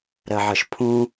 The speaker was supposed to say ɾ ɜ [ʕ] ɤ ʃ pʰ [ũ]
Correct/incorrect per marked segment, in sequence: correct, correct

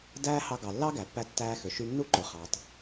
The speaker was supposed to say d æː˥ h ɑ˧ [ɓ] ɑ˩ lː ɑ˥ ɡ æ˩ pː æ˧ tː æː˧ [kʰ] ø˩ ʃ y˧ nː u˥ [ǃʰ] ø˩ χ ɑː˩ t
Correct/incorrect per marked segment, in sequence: incorrect, incorrect, incorrect

